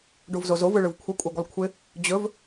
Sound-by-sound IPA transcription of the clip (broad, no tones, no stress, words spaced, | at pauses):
ɖovzozov ɯɭɯvkʷʰə kʷʼɯɡʷəlˠkʷʰɪ | d͡ʑɵv